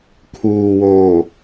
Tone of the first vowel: low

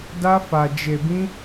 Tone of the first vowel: high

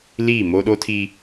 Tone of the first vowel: falling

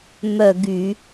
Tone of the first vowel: falling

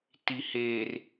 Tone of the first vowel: low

